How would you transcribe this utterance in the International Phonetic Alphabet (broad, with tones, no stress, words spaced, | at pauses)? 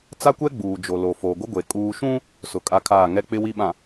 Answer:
t͡sa˦kʷɛ˦ ɡ͡buː˨d͡ʒo˨lo˨ foː˨ɡʷɪ˦ɡʷe˨ kʼuː˨ʃũ˦ | sʊ˨kʼa˦kʰaː˦˨ ŋɛ˦k͡pɪ˦ wi˦ɓã˨